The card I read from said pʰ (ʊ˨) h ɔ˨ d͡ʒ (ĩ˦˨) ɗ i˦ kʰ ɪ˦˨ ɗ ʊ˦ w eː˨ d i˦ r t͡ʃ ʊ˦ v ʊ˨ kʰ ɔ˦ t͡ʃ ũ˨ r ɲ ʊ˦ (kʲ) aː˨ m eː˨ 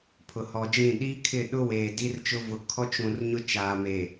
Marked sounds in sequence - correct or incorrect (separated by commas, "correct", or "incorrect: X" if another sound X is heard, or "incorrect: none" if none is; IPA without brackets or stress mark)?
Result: correct, correct, incorrect: t͡ʃ